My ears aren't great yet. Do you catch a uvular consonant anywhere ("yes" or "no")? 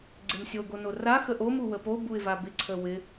no